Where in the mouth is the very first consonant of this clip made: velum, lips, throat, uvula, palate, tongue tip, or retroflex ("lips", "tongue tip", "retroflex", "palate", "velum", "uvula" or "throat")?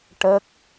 retroflex